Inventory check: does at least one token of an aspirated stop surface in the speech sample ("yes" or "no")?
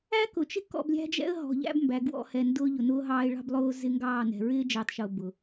no